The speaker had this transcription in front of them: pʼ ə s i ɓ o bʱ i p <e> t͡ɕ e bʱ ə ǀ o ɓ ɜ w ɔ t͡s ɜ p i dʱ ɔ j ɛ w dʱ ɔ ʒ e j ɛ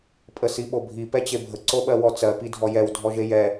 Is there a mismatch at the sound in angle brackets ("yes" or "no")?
yes